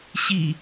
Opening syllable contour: low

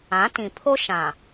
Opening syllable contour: rising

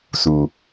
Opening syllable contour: low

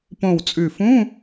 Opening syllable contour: low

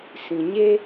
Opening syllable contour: low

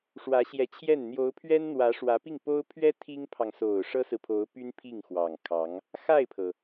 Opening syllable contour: rising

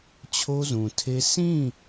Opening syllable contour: high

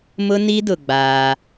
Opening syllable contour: high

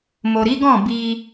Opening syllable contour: low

